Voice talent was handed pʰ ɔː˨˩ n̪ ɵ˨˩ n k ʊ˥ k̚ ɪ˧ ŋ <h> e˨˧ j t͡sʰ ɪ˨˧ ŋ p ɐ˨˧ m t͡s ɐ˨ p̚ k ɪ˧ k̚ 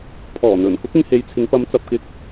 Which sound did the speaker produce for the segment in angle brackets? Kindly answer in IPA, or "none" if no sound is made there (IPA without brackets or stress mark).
h